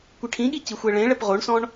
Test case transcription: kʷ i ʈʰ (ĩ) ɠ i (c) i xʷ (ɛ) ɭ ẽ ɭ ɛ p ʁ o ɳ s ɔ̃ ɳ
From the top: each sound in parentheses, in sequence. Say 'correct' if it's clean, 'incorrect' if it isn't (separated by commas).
correct, correct, correct